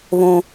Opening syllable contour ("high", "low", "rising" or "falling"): high